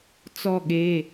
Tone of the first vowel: falling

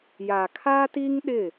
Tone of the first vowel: low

